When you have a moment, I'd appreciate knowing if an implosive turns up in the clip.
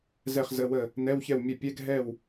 no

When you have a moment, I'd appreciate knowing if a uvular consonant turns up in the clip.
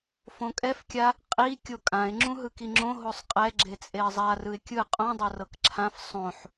yes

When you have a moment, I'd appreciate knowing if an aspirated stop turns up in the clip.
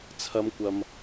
yes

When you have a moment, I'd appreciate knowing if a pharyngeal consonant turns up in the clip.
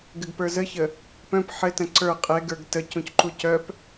yes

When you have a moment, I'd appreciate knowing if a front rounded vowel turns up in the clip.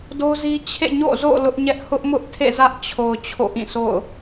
no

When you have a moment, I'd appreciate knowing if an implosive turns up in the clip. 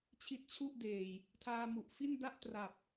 no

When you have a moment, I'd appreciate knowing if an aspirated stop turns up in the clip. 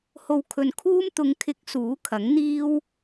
yes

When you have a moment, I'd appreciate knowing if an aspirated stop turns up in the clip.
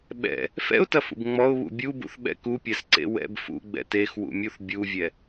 no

